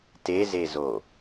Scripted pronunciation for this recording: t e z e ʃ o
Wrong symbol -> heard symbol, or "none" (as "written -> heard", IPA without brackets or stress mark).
ʃ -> z